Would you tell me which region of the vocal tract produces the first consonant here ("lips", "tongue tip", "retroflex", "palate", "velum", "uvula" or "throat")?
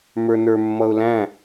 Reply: lips